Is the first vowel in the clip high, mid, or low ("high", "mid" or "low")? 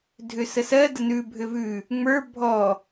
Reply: high